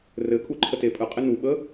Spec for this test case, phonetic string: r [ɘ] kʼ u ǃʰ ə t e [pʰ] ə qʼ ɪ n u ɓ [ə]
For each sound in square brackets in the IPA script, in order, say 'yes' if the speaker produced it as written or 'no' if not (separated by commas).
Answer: yes, no, yes